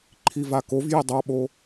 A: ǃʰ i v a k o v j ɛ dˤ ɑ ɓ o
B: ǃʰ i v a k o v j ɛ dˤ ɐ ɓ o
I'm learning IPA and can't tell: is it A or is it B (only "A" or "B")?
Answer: A